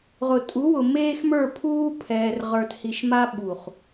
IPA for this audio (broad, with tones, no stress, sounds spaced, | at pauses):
ʁ ʊ˨ tʼ u˨˦ w ʊ˨ m eː˦ x m ə˞˦˨ pʰ uː˦ pʰ ɛː˨ r ʁ ə˞˨ t h i˨ ʃ m a˦ ɓ u˨ χ